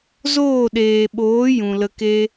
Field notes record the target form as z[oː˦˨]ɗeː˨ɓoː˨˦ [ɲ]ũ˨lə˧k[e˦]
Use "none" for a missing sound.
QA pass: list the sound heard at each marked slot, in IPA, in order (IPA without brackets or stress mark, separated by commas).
oː˦˨, j, e˦